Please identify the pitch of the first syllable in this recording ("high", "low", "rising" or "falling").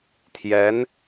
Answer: rising